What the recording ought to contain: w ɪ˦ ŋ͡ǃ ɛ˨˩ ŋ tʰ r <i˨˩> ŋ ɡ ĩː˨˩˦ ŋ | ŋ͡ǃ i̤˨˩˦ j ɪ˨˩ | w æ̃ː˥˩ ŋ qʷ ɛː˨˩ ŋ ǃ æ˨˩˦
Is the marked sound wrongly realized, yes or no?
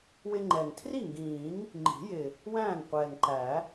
yes